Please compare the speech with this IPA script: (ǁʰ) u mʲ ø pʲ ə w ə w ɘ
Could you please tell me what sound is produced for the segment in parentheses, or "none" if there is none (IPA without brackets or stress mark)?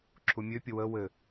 ǁʰ